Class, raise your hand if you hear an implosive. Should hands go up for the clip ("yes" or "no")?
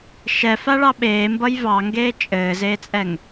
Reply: yes